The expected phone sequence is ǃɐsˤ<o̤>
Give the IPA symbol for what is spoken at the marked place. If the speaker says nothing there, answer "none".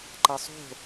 o̤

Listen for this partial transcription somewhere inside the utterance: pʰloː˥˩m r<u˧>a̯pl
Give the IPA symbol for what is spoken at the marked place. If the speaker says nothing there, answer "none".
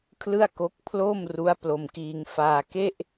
u˦˥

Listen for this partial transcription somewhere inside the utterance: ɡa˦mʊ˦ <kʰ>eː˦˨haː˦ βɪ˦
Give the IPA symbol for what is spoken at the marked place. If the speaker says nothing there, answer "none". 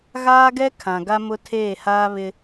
tʰ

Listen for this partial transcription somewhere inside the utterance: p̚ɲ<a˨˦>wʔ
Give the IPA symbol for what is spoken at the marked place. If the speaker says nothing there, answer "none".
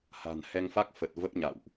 a̰˧˨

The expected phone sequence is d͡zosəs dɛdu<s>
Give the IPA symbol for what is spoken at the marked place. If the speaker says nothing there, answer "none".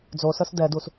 s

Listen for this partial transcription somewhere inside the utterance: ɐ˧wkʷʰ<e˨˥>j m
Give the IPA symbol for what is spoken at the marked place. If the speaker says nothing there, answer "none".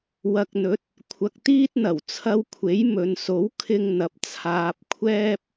e˨˥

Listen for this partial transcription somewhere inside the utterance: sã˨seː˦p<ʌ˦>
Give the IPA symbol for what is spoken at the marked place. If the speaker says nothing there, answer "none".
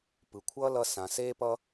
ʌ˦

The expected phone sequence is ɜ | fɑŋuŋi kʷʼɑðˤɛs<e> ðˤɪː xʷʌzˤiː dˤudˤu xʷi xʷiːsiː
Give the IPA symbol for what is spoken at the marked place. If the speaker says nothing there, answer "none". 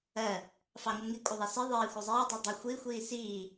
i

